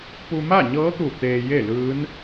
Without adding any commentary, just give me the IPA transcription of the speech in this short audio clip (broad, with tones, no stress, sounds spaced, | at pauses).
p u˧ m a˥˨ ɲ ɤː˧˥ t̪ u˧˩ t̪ eː˧ j e˥˨ l ɯː˧˥ n